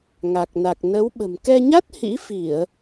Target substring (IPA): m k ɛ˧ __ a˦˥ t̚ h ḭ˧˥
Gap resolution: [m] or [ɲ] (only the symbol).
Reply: ɲ